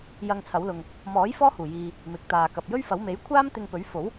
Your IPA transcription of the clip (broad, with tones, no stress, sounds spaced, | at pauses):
j ɐ˧ ŋ t͡sʰ ɐ˨˥ w l ʊ˨ ŋ | m ɔː˨˥ j f ɔː˥ h uː˨˩ j iː˨ | m ɪ˨ k̚ t̪ aː˨ k ɐ˨ p̚ j ɵ˥ ɥ f ɐ˨˥ w m e˨˥ j kʷʰ aː˥ m t̪ ɪ˧ ŋ p ɵ˨˥ ɥ f o˨˥ w